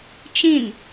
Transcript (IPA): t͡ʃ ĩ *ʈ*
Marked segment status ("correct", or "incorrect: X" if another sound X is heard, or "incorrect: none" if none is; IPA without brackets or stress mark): incorrect: n